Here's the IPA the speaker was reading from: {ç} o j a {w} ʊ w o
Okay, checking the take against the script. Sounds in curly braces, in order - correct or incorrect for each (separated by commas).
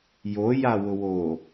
incorrect, correct